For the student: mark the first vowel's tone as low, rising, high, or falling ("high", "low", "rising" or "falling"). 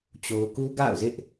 high